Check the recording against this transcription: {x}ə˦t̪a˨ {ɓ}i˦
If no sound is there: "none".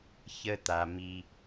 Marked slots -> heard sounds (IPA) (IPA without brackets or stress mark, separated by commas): ç, m